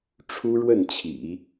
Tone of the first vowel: high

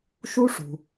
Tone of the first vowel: high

